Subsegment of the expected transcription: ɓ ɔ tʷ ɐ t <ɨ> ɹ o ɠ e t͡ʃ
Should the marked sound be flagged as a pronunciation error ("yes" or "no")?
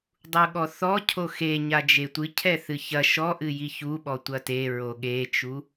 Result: yes